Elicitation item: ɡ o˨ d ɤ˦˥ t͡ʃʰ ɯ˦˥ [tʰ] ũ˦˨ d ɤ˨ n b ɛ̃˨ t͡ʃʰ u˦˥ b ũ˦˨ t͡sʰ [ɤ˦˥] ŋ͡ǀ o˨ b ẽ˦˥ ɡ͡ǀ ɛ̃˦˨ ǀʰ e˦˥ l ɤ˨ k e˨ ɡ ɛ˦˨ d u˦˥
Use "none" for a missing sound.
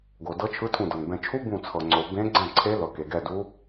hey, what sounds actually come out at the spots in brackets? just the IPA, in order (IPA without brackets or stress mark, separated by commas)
tʰ, ɤ˨